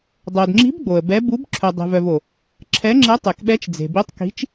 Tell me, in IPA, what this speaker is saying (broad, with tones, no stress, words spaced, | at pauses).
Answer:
dˤo˨dŋ͡ǁi̤˧˥b ɡ͡bo˨ə̯bɛ˧˥ bu˧˥b ǁʰœ˨dˤe̤˨vœ˨v o˨ | ǁʰɛ˧˥ŋ͡ǁɛ˧˥ tˤe˨kɓɛ˧˥t͡ʃd͡ze̤˨ bi˧˥tˤki̤˧˥t͡ʃ